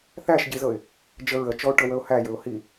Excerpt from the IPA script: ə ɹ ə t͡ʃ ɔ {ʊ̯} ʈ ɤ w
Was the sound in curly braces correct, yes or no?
yes